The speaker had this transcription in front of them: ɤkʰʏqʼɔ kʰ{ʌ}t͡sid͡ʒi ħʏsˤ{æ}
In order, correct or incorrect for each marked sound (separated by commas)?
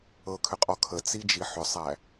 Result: incorrect, correct